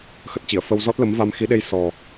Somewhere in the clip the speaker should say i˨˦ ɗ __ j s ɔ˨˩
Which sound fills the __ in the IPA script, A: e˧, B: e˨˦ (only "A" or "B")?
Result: A